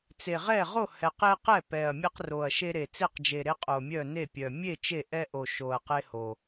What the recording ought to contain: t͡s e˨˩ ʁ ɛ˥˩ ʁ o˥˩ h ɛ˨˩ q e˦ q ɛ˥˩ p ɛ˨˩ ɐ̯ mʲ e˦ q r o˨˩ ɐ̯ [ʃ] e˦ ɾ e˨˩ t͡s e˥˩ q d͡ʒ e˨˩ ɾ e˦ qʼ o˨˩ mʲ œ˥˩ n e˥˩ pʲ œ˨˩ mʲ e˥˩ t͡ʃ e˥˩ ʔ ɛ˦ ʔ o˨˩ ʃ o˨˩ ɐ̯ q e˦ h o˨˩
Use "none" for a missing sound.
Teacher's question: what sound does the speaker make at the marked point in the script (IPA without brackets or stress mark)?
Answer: ʃ